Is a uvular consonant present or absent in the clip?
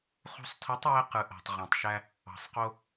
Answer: present